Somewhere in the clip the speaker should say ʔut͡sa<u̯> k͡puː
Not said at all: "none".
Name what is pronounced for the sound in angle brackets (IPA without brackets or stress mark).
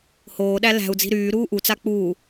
none